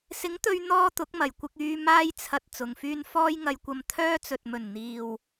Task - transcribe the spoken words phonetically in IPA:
sɪ˨˥ŋt̪ɵ˧ɥ n̪ɔː˥t̪ʊ˨˥k̚mɐ˨˩j kʷɪ˧k̚yː˧ maː˥jt͡sʰɐ˧t̚ t͡sʊ˨ŋfyː˥n fɔː˥jŋɐ˧jkʷɐ˧m t̪ʰœː˥t͡sɵ˨t̚mɵ˨˩n n̪iː˨w

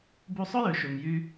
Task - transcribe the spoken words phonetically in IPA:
bu˧sˤʊ˥jø˩ʃø˩m jy˧

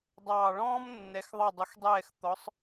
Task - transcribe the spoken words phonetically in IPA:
dˤɑː˨˩ ɭɔ̃ː˥mnːɛ˩˧x ðˤɑ˨˩dˤʊ˩˧xdˤɛː˨˩x t̪ɔ˩˧sˤ

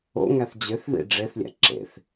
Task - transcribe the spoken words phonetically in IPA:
o̰ ŋæθd͡ʑøθðḭ ɖ͡ʐeθlʲæ̰ ǁḛθ

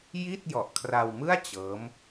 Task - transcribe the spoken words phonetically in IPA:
ji˥˩t̚ jɔ˨˩ʔkʰra˧wmɯ˥˩a̯ t͡ɕɤː˦˥m

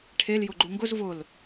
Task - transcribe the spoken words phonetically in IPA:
ʈʰel jʊɡ͡ǃuŋɡʊz vʊl

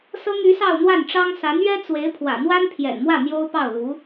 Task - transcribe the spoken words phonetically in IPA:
sɤ˥ŋy˧˥ sɑ˥˧ʊ̯n̪wa˥˩nʈ͡ʂɑ˥ŋ sa˧˥nɥɛ˥t͡swe˧˥ɪ̯ pʰwä̰˨˩n̪wa˥n pʰjɛ̰˨˩nmwä˥˩ n̪jo˥ʊ̯pɑ˥˩ʊ̯lu˧˥

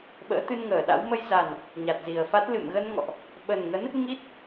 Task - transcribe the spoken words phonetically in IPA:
ɓə̰ː˧˥t̪ɨ˧nŋəː˧˩ɗa̰˧˥w mə˧jza˨˩n | ɲa˨˩t̚zi˨˩ə̯fa˦˥t̚ lɨ̰˧˨mɣə˧nŋɔ̰˧˨ʔ | ɓə˨˩nŋə˨˦n | ŋi˦˥t̚

